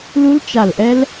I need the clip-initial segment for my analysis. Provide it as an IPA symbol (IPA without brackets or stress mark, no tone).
l